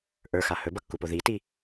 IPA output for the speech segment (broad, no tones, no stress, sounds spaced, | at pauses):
ʔ ə˞ x a h ɵ b ʌ kː u p o ð i t i